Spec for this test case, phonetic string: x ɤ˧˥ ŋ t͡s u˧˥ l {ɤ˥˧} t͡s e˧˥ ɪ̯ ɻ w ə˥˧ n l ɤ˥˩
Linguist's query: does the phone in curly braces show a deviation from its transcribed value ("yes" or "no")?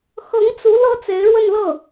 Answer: yes